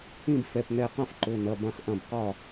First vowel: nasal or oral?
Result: nasal